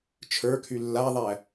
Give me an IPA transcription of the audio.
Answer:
t͡ʃʰ ə˞ kʰ y lː a ðˤ æ

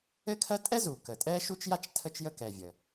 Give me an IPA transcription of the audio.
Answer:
ɘ˥ kʰ ɜ˥ tʼ ɛ˥ z u˩ k ə˩ tʼ ɛ˥ ʃ u˥ t͡ʃ j a˥ t͡ʃ tʰ ə˥ t͡ʃ j ə˥ k ɛ˩ vʲ ə˩

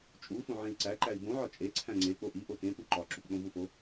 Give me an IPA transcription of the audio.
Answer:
t͡ʃʼ u f õ ʕ ẽ i̯ ǀ æ ǃ æ i̯ b õ ʕ ɒ t͡ʃʼ e ǀʰ æ̃ ŋ͡ǀ e k͡p o ʔ i ʔ o t ẽ p u ǃ ɒ ǁ u p ɗ õ v u f o

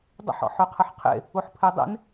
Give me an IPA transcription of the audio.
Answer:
dˤ ə̰ ħ ɔ̰ ħ ø qʰ ə ħ qʰ ḛ | u ħ pʰ e dˤ ḛ n

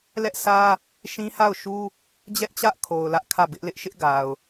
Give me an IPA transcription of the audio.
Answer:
l ɛ˦ ʔ sʰ ä˦ | ʃ ĩ˦ h a˦˨ ʊ̯ ʃ u˦ | d͡ʑ ɛ˦ ʔ t͡ɕ ä˦ ʔ kʰ o˨ ʊ̯ l ä˦ ʔ kʰ ä˦˨ b ɪ˦ ʔ l ɪ˦ ʔ ʃ ɪ˦ ʔ ɡ a˨ ʊ̯

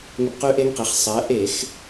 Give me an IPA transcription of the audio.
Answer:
ŋ ə˧ b q ʉ˦˥ ʔ e˦˥ ŋ q e˩˧ χ sˤ ɜ˩˧ ʔ e˧˩˧ x

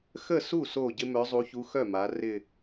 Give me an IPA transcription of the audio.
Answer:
x ə˥˩ s u˥˩ s o˧˩ ɟ ɪ˥ m œ˧˥ zˤ u˧˥ ç u˧˥ x œ˥˩ m a˩˧ r ɪ˧˩

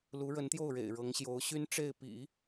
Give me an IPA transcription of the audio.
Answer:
l u˧˥ ɻ ə˧˥ n t̪ j o˥˩ ʊ̯ ɻ ḛ˨˩ ɪ̯ ɻ ɤ˧˥ ŋ ɕ j o˧˥ ʊ̯ ɕ y˥ n ʈ͡ʂ e˥˩ ɪ̯ p ḭ˨˩˦

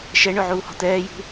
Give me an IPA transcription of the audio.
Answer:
ʃ ɛ ɳ ɵ ʕ uː h ɔ̤ t̪ ɛː j ṳ

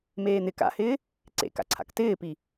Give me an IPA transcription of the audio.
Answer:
m eː n̪ ɪ k a̰ h ɪː | ǀ ḛ k a̰ ǀʰ a̰ k t ɪː p i

